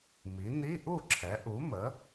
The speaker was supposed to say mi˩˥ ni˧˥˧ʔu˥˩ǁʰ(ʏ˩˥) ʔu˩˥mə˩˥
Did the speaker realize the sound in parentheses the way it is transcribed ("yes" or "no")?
no